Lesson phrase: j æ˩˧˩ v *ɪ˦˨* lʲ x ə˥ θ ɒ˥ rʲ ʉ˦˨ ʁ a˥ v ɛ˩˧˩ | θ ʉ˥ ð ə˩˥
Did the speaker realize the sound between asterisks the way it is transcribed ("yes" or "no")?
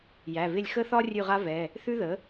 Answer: yes